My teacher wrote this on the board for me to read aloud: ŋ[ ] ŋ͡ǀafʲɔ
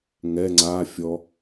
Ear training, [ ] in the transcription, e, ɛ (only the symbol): ɛ